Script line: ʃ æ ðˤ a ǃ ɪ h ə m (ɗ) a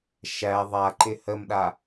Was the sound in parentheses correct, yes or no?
yes